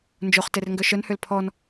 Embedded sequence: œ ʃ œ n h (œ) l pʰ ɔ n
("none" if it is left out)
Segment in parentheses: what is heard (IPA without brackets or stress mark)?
ø